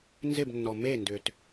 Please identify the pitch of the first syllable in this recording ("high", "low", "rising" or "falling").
falling